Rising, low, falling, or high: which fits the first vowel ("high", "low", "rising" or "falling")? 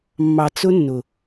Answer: low